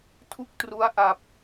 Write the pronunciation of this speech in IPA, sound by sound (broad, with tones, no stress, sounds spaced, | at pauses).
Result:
tʰ u˥˩ k̚ t r u˦˥ a̯ ʔ a˨˩ p̚